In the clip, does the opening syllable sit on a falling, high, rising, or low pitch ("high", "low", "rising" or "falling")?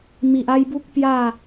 low